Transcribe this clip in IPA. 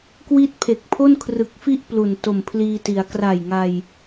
k w i˦˥ t̚ pʰ e˨˩ k̚ pʰ o˥˩ n kʰ r ɯ˨˩ k̚ f i˦˥ ʔ p l u˨˩ n t o˨˩ m pʰ l iː˧ t i˩˦ a̯ k r a˨˩ j ŋ a˧ j

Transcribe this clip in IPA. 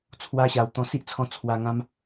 t͡sʰ w a˧ ɕ a˨˩ w t̪ ɔ̃˧ s i˦ ʔ t͡sʰ ɔ̃˧ t͡sʰ w a˧ ŋ ã˦ m

